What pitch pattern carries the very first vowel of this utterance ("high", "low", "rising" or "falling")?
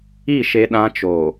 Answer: falling